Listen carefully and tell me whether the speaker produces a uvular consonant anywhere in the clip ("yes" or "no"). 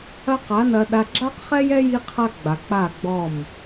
yes